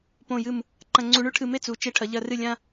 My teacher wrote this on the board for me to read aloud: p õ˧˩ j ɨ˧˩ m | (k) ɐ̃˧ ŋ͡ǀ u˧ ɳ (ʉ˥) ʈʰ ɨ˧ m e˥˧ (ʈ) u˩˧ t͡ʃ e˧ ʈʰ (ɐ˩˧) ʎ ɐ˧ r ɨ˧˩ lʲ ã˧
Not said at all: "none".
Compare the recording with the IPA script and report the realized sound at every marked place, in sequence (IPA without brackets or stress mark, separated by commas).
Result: ǃ, ʉ˥, t͡s, ɐ˩˧